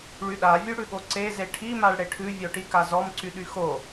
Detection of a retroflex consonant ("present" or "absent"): present